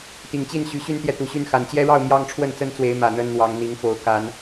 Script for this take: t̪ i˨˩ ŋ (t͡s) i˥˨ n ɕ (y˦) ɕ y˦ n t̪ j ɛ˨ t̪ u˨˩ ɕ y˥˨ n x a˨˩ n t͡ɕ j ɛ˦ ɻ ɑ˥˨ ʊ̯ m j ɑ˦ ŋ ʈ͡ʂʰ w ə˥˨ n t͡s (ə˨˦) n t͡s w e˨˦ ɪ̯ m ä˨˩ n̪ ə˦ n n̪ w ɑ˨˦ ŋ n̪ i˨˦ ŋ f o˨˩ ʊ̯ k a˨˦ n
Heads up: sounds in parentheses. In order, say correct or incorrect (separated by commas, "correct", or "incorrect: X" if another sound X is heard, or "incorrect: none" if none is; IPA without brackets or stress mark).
incorrect: t͡ɕ, incorrect: y˨˦, incorrect: ə˦